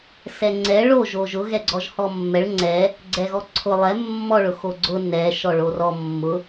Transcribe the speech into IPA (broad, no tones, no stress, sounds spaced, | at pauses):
s ɛ ŋ͡ǀ ɛ ɭ o ʒ o ʒ ʊ ɣ ɛ ɡ͡ǀ ɔ ʒ h ɔ mː ɛ ɭ ŋ͡ǀ ɛ | ɡ͡ǀ ɛ ɣ ɔ ǀʰ ʊ lˠ ɛ mː ɔ ɭ ʊ x o ɡ͡ǀ ʊ n ɛ ʃ ɔ ɭ o r ɔ mː ʊ